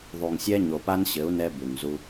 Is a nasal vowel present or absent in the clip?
absent